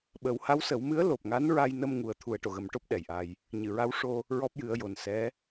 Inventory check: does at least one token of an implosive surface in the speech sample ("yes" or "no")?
yes